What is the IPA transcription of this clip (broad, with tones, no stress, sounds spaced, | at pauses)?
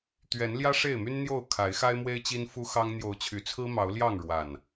t̪ ɥ ɛ˨˦ n l j ä˦ ʂ e˥˨ ɪ̯ m y˦ n n̪ j o˥˨ ʊ̯ kʰ a˨˦ ɪ̯ x a˦ ɪ̯ m w e˦ ɪ̯ t͡ɕ i˦ n f u˦ x ɑ˦ ŋ n̪ j o˨˦ ʊ̯ t͡ɕʰ y˨˩ t͡sʰ ɹ̩˦ m ɑ˨˦ ʊ̯ l j ɑ˥˨ ŋ ɻ w a˨˩ n